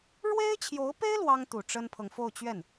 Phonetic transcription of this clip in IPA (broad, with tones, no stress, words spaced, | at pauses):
ɻwe˥ɪ̯t͡ɕʰjo˧˥ʊ̯pe˥ɪ̯ lwɑ˥ŋ t̪u˨˩ ʈ͡ʂə˥npʰɤ˨ŋ fo˥˧ʊ̯t͡ɕɥɛ˥˩n